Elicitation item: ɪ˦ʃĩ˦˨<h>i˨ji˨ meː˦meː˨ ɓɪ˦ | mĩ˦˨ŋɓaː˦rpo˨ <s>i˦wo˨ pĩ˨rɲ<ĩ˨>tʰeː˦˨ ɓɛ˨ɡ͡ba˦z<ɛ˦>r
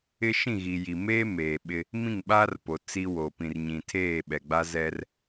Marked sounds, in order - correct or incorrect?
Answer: incorrect: ɣ, incorrect: t͡s, correct, correct

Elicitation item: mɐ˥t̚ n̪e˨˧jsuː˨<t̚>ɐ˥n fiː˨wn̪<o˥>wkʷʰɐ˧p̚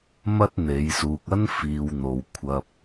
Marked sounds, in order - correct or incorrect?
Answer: incorrect: k̚, incorrect: o˨

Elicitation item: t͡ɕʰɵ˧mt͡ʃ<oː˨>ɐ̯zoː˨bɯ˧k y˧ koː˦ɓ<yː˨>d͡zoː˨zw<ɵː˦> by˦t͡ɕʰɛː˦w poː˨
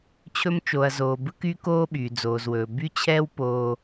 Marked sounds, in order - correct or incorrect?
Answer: incorrect: o˨, correct, incorrect: ɵː˨

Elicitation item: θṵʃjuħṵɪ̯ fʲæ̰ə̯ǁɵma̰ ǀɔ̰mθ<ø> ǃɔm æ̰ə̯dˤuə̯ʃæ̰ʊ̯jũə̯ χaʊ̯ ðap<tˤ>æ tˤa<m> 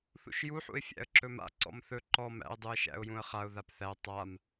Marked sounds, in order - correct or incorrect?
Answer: incorrect: ɵ, incorrect: θ, correct

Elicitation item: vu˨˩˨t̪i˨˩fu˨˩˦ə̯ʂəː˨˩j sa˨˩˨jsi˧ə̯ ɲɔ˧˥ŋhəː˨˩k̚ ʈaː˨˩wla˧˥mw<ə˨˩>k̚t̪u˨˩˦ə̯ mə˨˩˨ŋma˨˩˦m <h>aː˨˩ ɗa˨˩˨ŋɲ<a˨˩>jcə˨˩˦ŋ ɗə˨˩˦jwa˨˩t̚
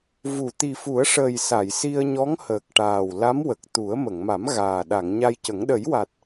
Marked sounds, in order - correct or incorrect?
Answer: correct, incorrect: ɣ, incorrect: a˧

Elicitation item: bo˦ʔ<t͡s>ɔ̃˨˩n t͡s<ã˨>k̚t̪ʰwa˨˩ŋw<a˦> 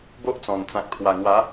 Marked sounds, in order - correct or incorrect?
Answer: correct, correct, incorrect: a˨˦

